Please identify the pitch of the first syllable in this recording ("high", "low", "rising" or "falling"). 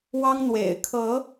high